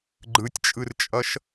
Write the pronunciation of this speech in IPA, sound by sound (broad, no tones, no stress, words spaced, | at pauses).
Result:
ɡ͡ǃɯtʲt͡ʃʼɯrt͡ʃʼʌʃ